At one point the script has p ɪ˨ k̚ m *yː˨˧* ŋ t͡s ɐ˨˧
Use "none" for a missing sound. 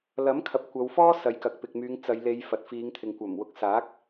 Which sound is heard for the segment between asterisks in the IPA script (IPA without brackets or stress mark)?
yː˨˧